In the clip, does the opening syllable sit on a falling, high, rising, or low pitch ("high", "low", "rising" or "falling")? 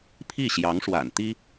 falling